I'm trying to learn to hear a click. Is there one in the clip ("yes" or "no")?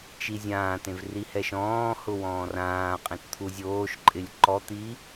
yes